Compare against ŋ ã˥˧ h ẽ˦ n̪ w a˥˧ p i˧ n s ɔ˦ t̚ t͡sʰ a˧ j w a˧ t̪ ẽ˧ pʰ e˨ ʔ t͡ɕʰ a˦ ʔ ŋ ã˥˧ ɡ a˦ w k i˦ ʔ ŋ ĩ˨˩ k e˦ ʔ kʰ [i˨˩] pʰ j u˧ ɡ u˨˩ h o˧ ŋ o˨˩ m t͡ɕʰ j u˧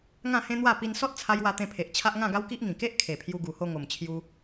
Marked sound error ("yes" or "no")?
yes